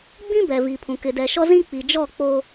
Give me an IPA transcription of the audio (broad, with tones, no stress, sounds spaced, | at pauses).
ɡ͡b ĩ˦ b ɛ˨ v i˨ pʰ ũ˨ k ɪ˨ d ɛ˨ ʃ ɔ˦ z ĩ˦ k͡p i˨ d͡ʒ ɔ˦˨ k͡p o˦